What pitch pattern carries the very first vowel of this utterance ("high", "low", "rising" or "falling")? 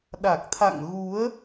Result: low